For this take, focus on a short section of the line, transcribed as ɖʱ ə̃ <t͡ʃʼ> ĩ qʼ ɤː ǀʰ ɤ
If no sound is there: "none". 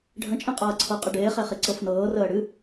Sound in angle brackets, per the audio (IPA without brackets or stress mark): t͡ʃʼ